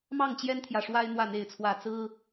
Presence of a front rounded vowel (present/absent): absent